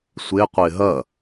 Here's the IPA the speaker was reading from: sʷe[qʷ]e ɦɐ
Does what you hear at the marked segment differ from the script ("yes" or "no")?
no